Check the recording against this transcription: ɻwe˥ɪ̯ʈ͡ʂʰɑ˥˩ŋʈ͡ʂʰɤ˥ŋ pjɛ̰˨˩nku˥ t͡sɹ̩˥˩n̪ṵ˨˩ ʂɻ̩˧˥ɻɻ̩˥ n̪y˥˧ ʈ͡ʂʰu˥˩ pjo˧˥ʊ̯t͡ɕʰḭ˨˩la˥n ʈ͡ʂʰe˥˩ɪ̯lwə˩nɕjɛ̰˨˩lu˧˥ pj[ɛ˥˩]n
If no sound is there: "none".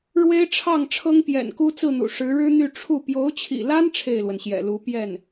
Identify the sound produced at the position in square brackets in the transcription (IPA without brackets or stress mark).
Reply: ɛ˥˩